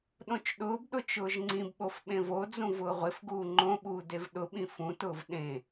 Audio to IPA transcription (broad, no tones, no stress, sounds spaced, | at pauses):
ɗ õ t͡ʃ ɗ ʊː b ɗ ʊ t͡ʃ ʊː ʒ ŋ͡ǀ ĩ b ɓ o f ɓ ẽ v o d͡z ũ v ʊː ʁʷ ɪ f ɡ uː ŋ͡ǃ õ ɓ uː d e v ɗ ʊ ɓ ĩ f ũ t ʊː v ɗ ẽ